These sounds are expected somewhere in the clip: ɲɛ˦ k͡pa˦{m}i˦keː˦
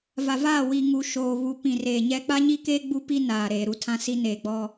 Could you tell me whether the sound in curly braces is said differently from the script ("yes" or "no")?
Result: yes